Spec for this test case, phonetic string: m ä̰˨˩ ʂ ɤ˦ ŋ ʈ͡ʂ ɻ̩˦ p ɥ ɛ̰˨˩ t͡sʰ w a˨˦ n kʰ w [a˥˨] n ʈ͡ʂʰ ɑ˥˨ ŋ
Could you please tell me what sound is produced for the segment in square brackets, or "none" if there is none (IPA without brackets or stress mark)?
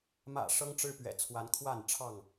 a˥˨